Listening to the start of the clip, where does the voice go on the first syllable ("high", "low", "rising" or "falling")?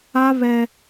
high